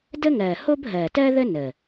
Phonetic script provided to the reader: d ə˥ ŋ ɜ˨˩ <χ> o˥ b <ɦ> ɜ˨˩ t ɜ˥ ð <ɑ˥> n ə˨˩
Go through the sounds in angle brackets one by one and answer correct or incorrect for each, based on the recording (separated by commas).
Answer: incorrect, correct, incorrect